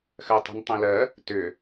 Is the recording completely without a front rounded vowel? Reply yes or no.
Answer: no